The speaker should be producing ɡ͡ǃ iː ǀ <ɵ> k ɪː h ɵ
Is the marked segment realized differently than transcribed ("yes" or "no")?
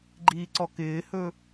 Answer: yes